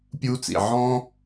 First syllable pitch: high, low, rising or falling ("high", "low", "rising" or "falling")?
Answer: high